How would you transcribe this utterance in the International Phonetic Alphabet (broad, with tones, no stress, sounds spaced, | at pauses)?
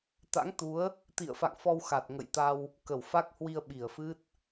t̪ a̰˧˥ ŋ t̪ u˨˦ ə̯ | t̪ ḭ˧˨ ə̯ f a̰˧˨ ŋ f ɔ˧ w x a˨˩ t̚ ŋ ə̰˧˨ j t̪ a˧ w | k ə˧˩ w f a˦˥ k̚ h w i˧ ə̯ ɓ i˧˩ ə̯ f ɨ˦˥ t̚